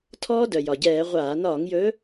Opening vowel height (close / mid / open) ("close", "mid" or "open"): mid